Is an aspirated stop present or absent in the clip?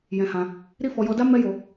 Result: absent